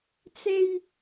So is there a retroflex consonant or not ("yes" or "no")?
no